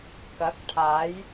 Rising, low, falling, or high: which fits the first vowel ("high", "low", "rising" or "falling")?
rising